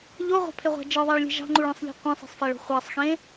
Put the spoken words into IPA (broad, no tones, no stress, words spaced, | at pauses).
ʎoʁʷɑ̤pʰeʁʷæ̤ d͡ʒɯðˤæɭlʲe̤ ʒɑ̤ŋ͡ǃuɭẽsˤʎe̤ qʷẽsˤe̤sˤfæɭo̤ χʷæsˤxẽ